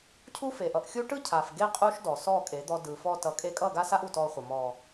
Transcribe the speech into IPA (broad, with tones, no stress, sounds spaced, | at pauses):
cʰ u˦ f e˨ ʔ ʌ˨ ʔ xʲ u˦ ʈ ɯ˦ cʰ a˨ f ɡ e˦ qʼ u˦ ʃ d ɔ˨ s ɔ˦˨ kʼ e˨˦ d̪ ɔ˧ d ɯ˨ f ɔ˧ t ʌ˨ kʼ e˧ kʼ ʌ˦˨ ɡ a˦ s a˦ ʔ u˨ t ɔ˧ χʷ ʌ˨ m ɔ˨